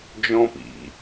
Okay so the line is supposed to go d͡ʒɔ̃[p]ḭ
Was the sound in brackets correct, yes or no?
yes